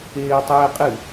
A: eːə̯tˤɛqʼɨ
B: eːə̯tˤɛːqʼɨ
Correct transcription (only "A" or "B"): B